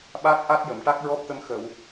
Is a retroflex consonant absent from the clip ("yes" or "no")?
no